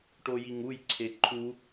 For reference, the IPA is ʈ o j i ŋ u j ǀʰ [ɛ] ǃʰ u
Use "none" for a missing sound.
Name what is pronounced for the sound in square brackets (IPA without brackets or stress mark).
e